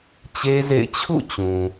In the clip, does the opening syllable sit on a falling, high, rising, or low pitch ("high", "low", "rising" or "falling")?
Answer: high